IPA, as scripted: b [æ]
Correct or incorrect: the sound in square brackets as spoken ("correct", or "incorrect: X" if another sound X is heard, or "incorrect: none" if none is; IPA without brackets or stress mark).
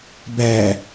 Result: correct